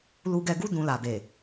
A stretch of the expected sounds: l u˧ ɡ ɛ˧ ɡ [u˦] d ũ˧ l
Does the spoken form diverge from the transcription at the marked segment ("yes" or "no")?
no